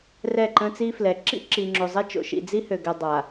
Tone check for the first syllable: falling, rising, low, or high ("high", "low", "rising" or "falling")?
falling